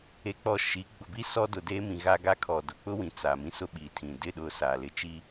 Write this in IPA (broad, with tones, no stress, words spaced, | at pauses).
e˨k͡pɔ˨ ʃi˨˦ ɡ͡bʊ˨bi˦ sɔ˦dʊ˨deː˦mĩ˨ ɣa˦ɡa˦kʰɔ˨ dʊ˨k͡pʊ˦wĩ˨ t͡sa˨mĩ˦sʊ˦ ɓi˨tʰĩ˨ dɪ˦˨ɗʊ˨ sa˨lɪ˦ t͡ʃi˦